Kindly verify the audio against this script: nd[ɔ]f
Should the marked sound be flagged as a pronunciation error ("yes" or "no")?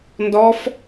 no